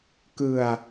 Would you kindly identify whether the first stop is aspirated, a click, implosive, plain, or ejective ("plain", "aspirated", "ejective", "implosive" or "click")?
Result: plain